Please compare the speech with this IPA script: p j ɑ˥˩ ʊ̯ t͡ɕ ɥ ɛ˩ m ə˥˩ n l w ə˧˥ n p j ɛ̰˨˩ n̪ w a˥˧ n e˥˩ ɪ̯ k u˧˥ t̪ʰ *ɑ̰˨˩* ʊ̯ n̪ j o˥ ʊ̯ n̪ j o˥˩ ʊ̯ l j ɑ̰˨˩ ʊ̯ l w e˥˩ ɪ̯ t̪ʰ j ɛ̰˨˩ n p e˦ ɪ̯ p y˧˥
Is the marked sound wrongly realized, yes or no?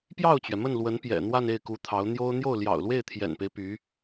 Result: yes